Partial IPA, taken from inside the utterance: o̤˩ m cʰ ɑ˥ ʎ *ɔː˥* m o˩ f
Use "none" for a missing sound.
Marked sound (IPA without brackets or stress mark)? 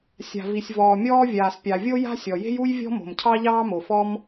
ɑː˥